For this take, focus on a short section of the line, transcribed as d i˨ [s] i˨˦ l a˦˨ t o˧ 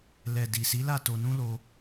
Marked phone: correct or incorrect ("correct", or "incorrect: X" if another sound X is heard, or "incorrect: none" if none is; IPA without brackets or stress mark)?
correct